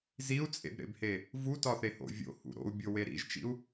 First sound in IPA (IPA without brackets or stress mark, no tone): z